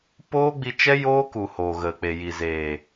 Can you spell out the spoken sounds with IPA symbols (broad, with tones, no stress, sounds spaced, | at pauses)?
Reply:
p oː˦ ɡ͡b i˧ t͡ʃ ɛ˦ j oː˦ k u˨ h o˨ ɣ ə˨ k͡p e˨ j i˨ z eː˨